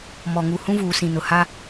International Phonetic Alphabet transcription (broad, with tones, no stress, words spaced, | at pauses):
mɔ˨ŋu˨ hũ˦vuː˨sĩ˨nʊ˨ ha˦